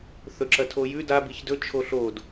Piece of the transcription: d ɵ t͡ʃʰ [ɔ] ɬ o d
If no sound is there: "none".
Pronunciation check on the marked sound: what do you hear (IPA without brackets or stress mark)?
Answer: o